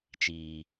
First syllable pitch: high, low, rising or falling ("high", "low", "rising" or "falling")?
low